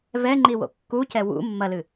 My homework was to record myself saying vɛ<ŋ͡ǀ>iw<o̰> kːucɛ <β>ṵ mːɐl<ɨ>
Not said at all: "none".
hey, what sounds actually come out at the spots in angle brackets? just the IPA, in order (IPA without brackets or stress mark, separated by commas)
ŋ͡ǃ, o̰, w, ɨ